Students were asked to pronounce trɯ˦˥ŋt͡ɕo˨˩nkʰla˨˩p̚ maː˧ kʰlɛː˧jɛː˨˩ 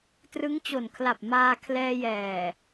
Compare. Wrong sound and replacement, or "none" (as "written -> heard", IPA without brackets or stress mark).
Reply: none